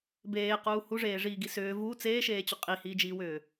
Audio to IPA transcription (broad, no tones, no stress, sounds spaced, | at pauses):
b eː q uː h u ʐ eː ʐ iː ɡ i s ʏː v u t͡s eː ʃ eː t͡ɕ ʏ qʼ i h iː d͡ʒ iː w ʏː